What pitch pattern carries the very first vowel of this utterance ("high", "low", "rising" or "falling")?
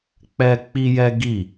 high